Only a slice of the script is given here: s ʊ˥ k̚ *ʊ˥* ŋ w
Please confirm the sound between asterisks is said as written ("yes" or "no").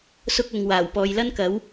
no